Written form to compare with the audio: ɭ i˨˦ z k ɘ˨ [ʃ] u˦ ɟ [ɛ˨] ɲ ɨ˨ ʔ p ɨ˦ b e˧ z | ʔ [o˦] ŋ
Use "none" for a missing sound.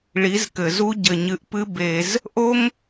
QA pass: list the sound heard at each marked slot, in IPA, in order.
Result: z, ɘ˨, o˦

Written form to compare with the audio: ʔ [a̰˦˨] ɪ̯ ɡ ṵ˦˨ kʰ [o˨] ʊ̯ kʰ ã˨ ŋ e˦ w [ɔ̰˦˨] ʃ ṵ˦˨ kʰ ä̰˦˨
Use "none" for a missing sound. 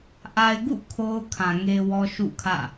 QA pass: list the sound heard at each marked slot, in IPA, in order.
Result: a˨, o˦, ɔ˦

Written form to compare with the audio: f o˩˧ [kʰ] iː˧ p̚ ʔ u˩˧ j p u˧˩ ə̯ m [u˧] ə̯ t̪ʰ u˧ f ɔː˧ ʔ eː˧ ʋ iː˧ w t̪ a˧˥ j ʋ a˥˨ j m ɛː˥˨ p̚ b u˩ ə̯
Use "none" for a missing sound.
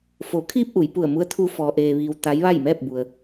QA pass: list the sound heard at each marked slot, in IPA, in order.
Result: kʰ, u˧˥

